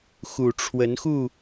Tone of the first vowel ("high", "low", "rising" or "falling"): low